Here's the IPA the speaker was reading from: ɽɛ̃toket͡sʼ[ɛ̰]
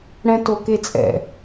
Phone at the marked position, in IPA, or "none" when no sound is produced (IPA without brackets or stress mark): ɛ̰